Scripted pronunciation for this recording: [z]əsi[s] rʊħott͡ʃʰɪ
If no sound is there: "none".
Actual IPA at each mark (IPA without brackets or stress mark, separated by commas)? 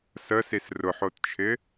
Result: s, s